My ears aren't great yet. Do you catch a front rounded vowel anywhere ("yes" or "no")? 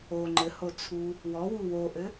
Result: no